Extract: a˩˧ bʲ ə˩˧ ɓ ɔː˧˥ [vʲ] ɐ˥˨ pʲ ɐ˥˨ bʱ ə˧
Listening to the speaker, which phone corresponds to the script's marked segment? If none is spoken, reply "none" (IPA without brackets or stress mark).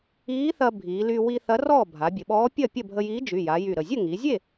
pʲ